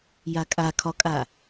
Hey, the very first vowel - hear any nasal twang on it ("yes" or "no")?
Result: no